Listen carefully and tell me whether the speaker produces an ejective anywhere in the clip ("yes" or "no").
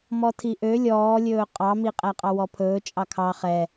yes